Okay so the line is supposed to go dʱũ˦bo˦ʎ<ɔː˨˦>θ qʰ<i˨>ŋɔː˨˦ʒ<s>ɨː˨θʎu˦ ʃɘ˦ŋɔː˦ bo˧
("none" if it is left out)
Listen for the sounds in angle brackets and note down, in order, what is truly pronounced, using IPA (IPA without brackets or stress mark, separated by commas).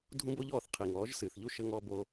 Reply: ɔː˦˨, i˨, s